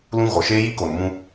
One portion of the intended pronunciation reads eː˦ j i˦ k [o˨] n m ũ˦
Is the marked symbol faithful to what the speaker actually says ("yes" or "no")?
yes